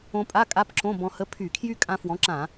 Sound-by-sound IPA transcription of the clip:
õ˧ pʼ a˧˥˧ kʼ a˧˥˧ p ǁ õ˧˥˧ b ɔ̃˧ h ə˧˥˧ pʰ y˧˩˧ kʰ j y˥ kʼ ã˧ f w ɔ̃˨˥ ǁ ã˧˩˧

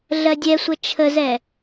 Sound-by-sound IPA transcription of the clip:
ɮ ɜ dʲ ɛ sʷ ə t͡ʃʰ ə z ɛ

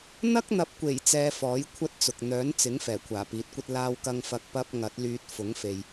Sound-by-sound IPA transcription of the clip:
n̪ ɐ˥ k̚ n̪ ɐ˨˥ p̚ kʷ e˨˩ j t͡s ɛː˨ f ɔː˨˥ j kʷʰ ɐ˥ t̚ t͡s ʊ˨ k̚ n̪ œː˨˥ n t͡s ɪ˨˥ ŋ f ɛː˨˩ kʷʰ aː˨˩ p iː˨˥ t̚ kʷ ɐ˥ t̚ l aː˧ w k ɐ˧ ŋ f ɐ˨˥ k̚ p ɐ˥ p̚ ŋ ɐ˨˥ t̚ l yː˧ t̚ f ʊ˨˥ ŋ f e˨ j

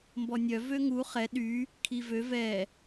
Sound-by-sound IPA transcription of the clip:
m b ɔ nʲ œ v ø ŋ u χ ɛ ɗ y | kʰ i v ø v ɛ

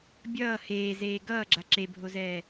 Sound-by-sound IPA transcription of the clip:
bʲ ʌː h eː z eː ɡ ʌː ɡ͡ǁ a ǁ e bʱ o z ɛː

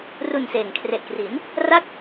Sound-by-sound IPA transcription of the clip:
r u˨˩ n s eː˨˩ ŋ kʰ r e˨˩ ʔ k r i˩˦ n | r a˦˥ k̚

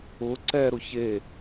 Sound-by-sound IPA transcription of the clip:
ʊ ǀ ɛ ɾ ʊ ç e

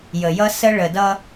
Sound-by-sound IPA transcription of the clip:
j ə˨ j ʌ˦ s ə˦ ɭ ə˨ d ʌ˦

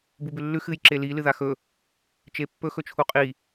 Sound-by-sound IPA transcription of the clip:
b u b ʉ lː ʉ x ɨ j ǁ e l i l ɨ ð a x ɵ | t͡ʃ e pː ɵ x ɵ t͡ʃʰ u qʼ i

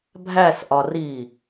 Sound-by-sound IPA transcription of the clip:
bʱ æ s ʔ ɒ r i

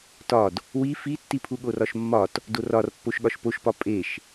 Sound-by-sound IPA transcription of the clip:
t ɒ d | w i f i tː i pʰ u ɠ o r ɒ ʃ mː ɒ t | d o r ɒ r pː o ʃ ɠ ɒ ʃ p o ʃ p ɒ pʼ e ʃ

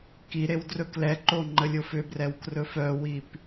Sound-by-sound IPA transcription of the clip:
k i ɾ e w d r ɵ k l ɛ ǃ o ŋ͡ǃ ə lʲ o f ʏ b r ɛ w k r ɵ f œ w i p

